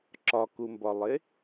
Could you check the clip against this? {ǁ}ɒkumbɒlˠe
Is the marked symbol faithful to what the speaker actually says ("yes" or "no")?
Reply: yes